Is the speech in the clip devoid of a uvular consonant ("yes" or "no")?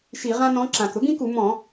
no